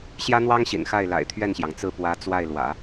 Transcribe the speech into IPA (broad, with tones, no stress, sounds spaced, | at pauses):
ɕ j ä˥ n̪ w ɑ˥ ŋ ɕ ḭ˨˩ n x a˥˩ ɪ̯ l a̰˨˩ ɪ̯ t̪ʰ ɥ ɛ˥˩ n ɕ j ɑ˩ ŋ t͡s ɹ̩˥˩ p w ä˧˥ t͡s w a˥˩ ɪ̯ l w ä̰˨˩˦